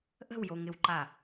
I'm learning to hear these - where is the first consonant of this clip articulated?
throat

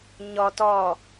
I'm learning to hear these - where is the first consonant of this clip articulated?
palate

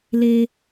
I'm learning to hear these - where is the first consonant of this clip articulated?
tongue tip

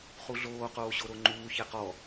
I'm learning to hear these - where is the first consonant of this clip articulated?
uvula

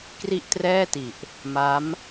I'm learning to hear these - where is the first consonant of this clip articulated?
velum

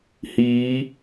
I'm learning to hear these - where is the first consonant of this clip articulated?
throat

